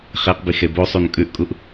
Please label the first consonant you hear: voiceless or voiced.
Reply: voiceless